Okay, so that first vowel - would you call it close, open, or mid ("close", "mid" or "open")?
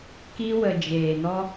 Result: close